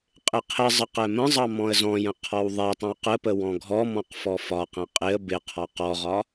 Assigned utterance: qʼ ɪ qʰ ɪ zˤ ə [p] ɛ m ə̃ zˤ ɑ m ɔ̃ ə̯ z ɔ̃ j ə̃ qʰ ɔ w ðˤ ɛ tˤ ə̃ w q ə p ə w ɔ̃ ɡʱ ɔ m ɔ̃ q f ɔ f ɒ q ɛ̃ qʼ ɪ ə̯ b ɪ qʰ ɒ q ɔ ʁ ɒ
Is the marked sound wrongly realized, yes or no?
yes